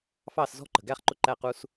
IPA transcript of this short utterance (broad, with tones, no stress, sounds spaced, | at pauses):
f ɑ˦˨ s z ɔ̤˦ ǃ ə̤˨ ɡ æ˦ χ ǃ ʊ˦ ǃ æ˦˨ q u˧ s